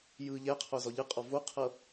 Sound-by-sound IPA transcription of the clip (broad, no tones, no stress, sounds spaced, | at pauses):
j ɯ ʎ ɛ qʰ o z ɔ ʎ ɯ qʼ ɔ v o qʰ ɤ